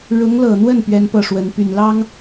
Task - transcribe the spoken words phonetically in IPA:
ɻ ʊ˧˥ ŋ l ɤ˨˩ n̪ w ə˥˩ n p ɥ ɛ˥ n p ɤ˥˩ ʂ w ə˧˥ n p y˨˩ n l ɑ˥ ŋ

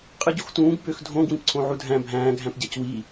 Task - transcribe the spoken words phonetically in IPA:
qʼ ɯ ɟ o x t ũː ɡ b ø x dʱ õ ɡ w ĩ p ǀʰ õ ʕ u dʱ æ̃ bʱ æ̃ː ɡʱ æ̃ p ɟ æ c w i

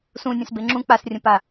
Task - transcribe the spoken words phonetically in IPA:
s ũ nʲ ə̃ s b e ŋ͡ǁ ũ k͡p a s rʲ ə̃ p a

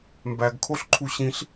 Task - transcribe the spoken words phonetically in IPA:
m b æ ɡ kʰ o ɬ ǃʰ u ɕ ĩ ɬ

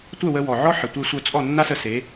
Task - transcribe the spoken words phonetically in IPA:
tʷ œ˥˩ w ə˧ w ɔ˩ ʕ ɔ˥ ħ ə˩ tʷ e˧ sʷ œ˧ t͡sʼ ɔ˥˩ nː a˥ s ə˧ s e˩˥

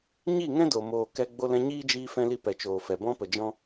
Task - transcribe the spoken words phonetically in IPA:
ɲ i˦˨ ŋ ɛ̃˦ d o˨ m oː˨ k ɛ˧ ɡ͡b o˧ l ɛ̃˧ ɲ iː˦ d͡ʒ iː˧ f ɛ̃˧ l i˧ p ɛ˨ t͡ʃ oː˨ f ɛ˨ b ɔ̃˧ p ə˨ d͡ʒ ɔ̃˧

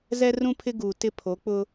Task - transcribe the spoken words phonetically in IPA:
z ɛ˦ r ũ˦ pʰ ɪ˦ ɡ uː˨ t ɪ˦ pʰ o˨˦ k͡p ʊ˦

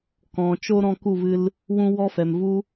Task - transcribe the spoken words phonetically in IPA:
k ɔ̃˨ t͡ʃ o˦ ɾ ɔ̃˧ k u˦˨ v ɨ˧ l | w ũ˧ w ɔ˦ f ɛ˨ m v u˦

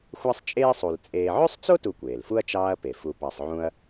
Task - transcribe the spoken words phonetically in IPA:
xʷ æ˥ sˤ t͡ʃʼ eː˥ sˤ u˨ l t͡sʼ eː˦ ʕ ø˥ sˤ t͡s o˥ t u˨ kʷ eː˩ l f u˥ ɐ̯ t͡ʃ ɑː˦ ɐ̯ p e˩ f u˨ p ɑ˨ sˤ ʕ ũ˦ ɐ̯

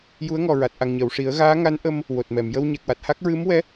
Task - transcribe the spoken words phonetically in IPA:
j u˧˥ ə̯ ŋ ɔ˨˩ ɹ a˨˩ t̚ ʔ a˨˩ ŋ ɲ əː˨˩˨ w ʂ i˨˩˦ ə̯ ɣ aː˧˥ ŋ a˧˥ n ʔ ə˧ m | w o˨˩ t̚ m ɛ˨˩˨ m j ə˧ w ɲ ɛ˨˩ k̚ w a˨˩ t̚ h a˦˥ k̚ ɹ ɨ˧˥ m w ɛ˧˥

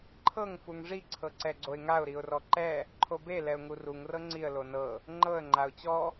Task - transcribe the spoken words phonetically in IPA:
ǃʰ ɤ ŋ f u ŋ ʐ i ǀʰ ɤ ǀ ɛ ɡ͡ǀ o ɪ̯ ŋ a ʊ̯ ɾ i ʊ̯ r ɔ ǃ ɛ | ǃʰ o b e l ɛ ʊ̯ ŋ u r u ŋ r ɤ ŋ͡ǀ i ə̯ l o n ɤ | ŋ͡ǃ ɤ ə̯ ŋ͡ǃ a ʊ̯ t͡ɕ ɔ

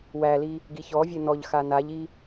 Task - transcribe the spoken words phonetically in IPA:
w æ l i | ɡ i ç ɔ vʲ e n ɔ ʎ x a n a ʎ i

